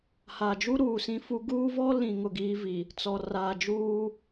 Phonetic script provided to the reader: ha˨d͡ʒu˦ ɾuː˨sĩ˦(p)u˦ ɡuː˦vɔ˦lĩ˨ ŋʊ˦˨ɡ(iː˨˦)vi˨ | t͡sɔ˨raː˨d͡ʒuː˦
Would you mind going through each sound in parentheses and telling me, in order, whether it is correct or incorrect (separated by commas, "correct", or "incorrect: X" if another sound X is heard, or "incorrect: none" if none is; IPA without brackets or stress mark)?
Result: incorrect: f, incorrect: iː˦